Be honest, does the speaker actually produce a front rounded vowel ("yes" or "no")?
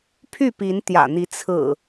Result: yes